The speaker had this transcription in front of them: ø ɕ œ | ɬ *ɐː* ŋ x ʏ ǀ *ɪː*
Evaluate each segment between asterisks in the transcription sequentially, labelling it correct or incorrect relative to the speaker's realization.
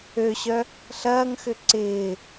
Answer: correct, correct

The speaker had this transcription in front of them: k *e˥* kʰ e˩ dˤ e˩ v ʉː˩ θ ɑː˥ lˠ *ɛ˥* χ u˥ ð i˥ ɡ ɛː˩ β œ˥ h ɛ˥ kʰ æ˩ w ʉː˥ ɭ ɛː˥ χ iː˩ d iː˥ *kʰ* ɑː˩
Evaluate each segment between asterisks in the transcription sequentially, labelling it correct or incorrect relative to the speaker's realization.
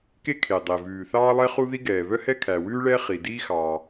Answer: correct, correct, incorrect

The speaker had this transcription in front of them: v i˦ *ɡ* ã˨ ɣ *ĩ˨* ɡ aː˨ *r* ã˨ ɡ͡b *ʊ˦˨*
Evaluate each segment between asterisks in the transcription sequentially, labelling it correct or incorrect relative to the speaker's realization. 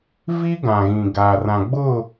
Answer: correct, correct, correct, correct

